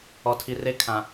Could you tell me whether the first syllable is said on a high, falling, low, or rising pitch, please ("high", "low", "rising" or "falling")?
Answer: low